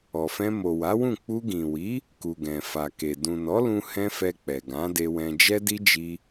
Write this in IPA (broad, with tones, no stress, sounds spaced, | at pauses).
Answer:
ɔ˨ f ɛ̃˧ m o˨ w a˨˦ w ũ˦˨ k͡p u˧ ɡ ĩ˨ w i˨˦ | k u˨ ɡ ɛ̃˨ f a˨ k e˨ d ũ˨ n ɔ˨˦ l ũ˧ h ɛ̃˦ f ɛ˧ k͡p ɛ˨ ɡ ã˨˦ d e˧ w ɛ̃˧ d͡ʒ ɛ˦ d i˦ d͡ʒ i˧